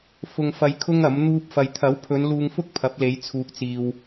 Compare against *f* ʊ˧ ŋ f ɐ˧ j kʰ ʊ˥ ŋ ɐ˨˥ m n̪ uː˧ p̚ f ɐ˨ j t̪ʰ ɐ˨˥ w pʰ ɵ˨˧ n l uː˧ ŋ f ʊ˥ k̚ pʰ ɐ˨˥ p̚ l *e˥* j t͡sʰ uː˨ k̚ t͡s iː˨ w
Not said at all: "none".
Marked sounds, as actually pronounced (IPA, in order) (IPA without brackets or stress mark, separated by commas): f, e˨˧